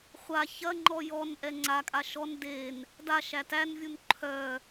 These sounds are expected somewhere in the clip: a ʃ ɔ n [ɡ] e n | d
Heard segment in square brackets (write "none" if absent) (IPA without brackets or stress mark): d